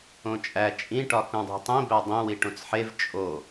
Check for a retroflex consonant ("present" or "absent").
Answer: present